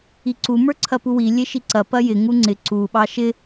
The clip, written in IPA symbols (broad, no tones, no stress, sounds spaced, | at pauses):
i ǀ u m ə˞ ǀʰ ɐ p u w i lʲ e ʃ i ǀ ɐ p ɐ j ɪ ŋ u ŋ͡ǀ ɪ ǀ u ɓ ɑ ʃ ɪ